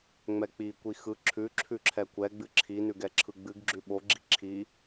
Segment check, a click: present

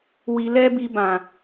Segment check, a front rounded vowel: absent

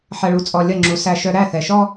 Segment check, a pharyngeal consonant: present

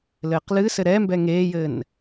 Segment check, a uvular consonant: present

